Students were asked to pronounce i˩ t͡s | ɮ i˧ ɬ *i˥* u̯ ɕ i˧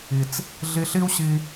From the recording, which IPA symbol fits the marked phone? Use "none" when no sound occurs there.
i˥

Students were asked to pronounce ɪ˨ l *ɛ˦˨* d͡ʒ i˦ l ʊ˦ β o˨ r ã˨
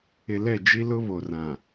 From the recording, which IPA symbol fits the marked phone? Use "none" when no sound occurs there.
ɛ˦˨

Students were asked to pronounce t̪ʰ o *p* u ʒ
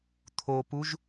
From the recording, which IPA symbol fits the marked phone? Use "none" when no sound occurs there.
p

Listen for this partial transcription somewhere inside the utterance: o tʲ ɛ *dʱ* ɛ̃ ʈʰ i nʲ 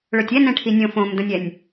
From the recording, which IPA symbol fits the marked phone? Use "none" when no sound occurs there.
n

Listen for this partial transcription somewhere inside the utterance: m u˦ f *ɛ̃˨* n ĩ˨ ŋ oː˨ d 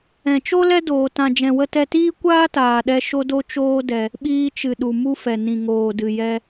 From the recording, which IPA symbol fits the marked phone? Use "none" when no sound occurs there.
ɛ˨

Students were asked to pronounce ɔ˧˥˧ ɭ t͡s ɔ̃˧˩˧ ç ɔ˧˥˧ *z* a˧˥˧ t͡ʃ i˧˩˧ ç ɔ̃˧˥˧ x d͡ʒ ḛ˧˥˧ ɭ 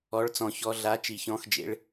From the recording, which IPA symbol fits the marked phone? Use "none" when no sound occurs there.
ɮ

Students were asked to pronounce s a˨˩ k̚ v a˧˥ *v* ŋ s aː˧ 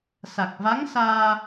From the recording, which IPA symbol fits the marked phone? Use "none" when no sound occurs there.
none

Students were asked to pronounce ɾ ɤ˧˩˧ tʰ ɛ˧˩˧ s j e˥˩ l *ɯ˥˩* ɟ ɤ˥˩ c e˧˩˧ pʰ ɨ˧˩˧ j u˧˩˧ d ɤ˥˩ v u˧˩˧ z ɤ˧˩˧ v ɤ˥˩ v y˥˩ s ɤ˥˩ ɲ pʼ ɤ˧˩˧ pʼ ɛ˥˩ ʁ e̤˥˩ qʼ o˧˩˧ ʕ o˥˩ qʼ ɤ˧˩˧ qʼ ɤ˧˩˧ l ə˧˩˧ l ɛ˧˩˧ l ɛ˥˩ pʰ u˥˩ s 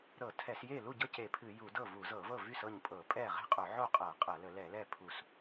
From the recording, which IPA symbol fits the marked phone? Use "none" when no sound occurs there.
u˥˩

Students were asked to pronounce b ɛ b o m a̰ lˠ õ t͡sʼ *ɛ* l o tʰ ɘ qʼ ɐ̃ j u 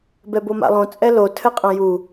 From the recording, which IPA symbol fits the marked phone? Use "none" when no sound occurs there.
ɛ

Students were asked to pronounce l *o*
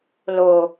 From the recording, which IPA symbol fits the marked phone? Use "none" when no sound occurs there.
o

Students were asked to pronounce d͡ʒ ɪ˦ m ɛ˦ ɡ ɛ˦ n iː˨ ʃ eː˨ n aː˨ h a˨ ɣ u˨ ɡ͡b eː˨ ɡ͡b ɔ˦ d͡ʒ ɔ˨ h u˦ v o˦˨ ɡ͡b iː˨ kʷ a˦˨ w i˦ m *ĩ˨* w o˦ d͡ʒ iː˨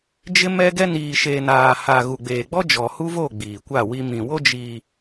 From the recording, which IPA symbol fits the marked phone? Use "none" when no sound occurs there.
ĩ˨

